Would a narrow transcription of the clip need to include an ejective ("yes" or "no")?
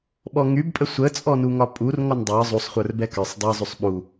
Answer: yes